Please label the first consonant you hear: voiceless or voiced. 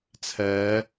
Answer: voiceless